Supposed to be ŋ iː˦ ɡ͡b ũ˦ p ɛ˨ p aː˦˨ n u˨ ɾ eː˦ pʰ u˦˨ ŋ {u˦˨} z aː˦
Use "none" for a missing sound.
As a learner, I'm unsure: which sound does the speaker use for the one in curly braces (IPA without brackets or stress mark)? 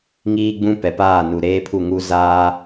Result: u˦